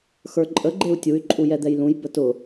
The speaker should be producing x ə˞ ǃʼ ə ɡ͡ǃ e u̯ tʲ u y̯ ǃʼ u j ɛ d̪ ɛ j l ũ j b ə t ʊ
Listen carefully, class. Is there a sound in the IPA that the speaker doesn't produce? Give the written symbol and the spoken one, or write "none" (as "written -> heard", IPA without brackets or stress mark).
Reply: none